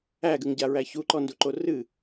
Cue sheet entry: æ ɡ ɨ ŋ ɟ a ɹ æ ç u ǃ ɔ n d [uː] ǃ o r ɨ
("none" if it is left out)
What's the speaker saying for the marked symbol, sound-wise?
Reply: u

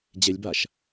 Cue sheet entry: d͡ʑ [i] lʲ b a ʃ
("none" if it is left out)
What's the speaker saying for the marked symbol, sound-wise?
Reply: e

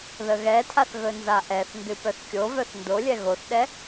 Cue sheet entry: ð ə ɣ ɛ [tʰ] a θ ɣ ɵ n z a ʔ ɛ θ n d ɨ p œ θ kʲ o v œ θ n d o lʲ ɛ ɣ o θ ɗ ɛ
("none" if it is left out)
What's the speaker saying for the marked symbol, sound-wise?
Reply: tʰ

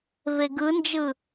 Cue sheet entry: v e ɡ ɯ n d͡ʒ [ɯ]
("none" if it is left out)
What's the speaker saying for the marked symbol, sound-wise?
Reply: ɯ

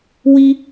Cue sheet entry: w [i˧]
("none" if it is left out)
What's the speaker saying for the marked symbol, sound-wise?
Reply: i˧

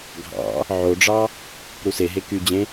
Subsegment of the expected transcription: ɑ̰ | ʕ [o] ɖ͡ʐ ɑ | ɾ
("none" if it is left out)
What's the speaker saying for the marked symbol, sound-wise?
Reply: o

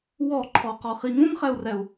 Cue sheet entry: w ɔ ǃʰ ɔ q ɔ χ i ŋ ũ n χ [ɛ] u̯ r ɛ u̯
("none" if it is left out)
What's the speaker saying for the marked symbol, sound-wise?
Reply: ɛ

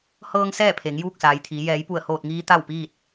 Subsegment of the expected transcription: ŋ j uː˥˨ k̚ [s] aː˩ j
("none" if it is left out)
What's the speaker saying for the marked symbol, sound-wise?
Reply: s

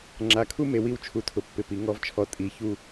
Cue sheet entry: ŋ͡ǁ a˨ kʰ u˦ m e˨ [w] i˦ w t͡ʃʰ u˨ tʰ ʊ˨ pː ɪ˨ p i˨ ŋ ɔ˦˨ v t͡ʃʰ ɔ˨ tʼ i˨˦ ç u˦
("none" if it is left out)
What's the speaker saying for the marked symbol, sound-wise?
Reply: w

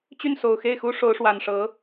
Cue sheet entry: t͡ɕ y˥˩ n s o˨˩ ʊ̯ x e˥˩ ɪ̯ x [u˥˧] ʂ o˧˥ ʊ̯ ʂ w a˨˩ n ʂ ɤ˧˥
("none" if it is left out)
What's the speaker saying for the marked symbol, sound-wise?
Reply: u˥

